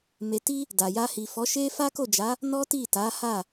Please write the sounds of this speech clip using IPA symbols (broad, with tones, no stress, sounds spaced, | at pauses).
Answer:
m e˨ t i˧ | d a˨ j a˧ h i˨ f ɔ˨˦ ʃ e˦ f a˦ k o˦˨ d͡ʒ a˨˦ | n ɔ˦ t i˦˨ t a˨˦ h a˦˨